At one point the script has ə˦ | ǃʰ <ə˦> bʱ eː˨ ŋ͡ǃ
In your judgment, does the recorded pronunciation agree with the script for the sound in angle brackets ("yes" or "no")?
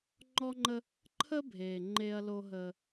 yes